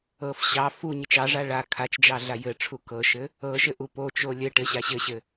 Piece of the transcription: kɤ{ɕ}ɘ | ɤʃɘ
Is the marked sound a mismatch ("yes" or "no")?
yes